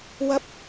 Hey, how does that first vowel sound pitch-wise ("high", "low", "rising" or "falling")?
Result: rising